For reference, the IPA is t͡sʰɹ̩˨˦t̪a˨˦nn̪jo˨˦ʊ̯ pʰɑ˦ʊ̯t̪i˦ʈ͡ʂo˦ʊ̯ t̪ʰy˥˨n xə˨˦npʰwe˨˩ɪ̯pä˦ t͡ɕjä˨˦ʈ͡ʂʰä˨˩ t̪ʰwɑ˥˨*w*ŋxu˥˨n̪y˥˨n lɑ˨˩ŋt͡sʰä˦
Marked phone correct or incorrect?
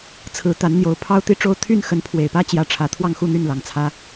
incorrect